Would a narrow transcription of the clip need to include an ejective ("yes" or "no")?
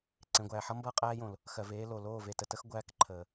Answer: yes